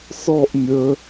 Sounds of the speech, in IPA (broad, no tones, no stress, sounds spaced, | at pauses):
s ɔ ʔ mʲ ə